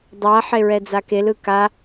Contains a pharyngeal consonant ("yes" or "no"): yes